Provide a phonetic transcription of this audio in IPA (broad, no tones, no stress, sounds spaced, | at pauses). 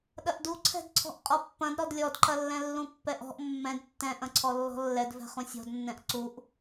ɗ ɐ ʔ d u ǀʰ ɛ̤ d ǀʰ ɔ̤ ʔ qʼ ɔ pː ɐ̃ d ɾ ɔ d lʲ ɔ d ǃ ɐ lː ɛ̃ lː ũ pː ɛ ʔ ɔ̤ ʔ mː ɛ̃ d tː ɛ̃ ʔ ɐ̃ ǀʰ ɔ lː ɔ̤ lː ɛ d v ɛ̤ χ ũ sʲ ɔ̤ d nː ɛ̃ ʔ ǀ u ʔ